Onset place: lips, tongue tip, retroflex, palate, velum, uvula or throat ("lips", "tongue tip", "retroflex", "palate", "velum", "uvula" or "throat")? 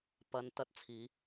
lips